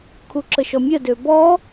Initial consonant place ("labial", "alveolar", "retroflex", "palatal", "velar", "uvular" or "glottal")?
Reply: velar